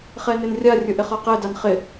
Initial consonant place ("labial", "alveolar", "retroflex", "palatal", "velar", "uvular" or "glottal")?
uvular